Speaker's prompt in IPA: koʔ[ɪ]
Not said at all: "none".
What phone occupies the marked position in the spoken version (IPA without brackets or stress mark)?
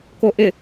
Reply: ɪ